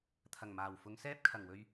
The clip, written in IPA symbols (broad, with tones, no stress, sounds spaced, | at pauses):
t̪ʰ ɐ˨˩ ŋ m aː˨˩ w f ʊ˨˧ ŋ s ɛː˥ p̚ kʰ ɐ˨˩ ŋ w ɵ˧ ɥ